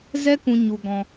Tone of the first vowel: high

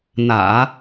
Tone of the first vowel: low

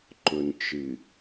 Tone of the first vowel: low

